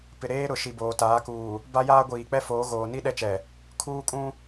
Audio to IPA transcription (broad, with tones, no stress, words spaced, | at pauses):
pɪ˨ɾeː˦ ɾʊ˨ ʃi˨boː˨taː˨˦kuː˨ | ba˦jaː˦ɡʷiː˨k͡pɛ˦ foː˨˦ɣoː˨ ni˦ ɗɛ˦t͡ʃɛ˨ | kʰuː˦kʼũ˦